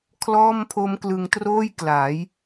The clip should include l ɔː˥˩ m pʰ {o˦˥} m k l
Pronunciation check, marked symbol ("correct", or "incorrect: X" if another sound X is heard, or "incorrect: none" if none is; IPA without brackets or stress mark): correct